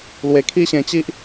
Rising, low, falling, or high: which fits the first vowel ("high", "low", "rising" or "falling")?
low